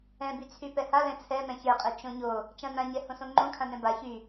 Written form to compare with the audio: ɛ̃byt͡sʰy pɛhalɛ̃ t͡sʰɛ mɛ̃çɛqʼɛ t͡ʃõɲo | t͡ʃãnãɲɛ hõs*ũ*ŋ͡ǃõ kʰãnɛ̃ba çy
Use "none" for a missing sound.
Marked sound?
õ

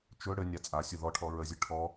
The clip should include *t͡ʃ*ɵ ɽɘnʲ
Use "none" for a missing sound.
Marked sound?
t͡ʃ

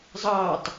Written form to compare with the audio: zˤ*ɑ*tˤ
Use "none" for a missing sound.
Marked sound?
ɑ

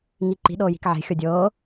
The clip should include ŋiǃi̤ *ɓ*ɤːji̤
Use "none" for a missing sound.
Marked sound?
ɗ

